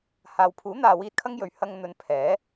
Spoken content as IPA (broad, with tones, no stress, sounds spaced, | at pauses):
h aː˨ w pʰ uː˨˥ n̪ aː˨ w iː˧ t̚ kʰ ɐ˥ ŋ j ɵ˨ ɥ h ɐ˧ ŋ n̪ ɵ˨˧ n pʰ ɛː˨˥